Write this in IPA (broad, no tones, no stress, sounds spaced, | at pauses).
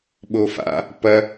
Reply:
ɓ o f a̰ | p ɐ